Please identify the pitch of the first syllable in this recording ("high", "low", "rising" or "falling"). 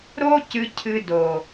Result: high